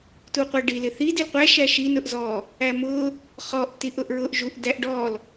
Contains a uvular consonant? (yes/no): yes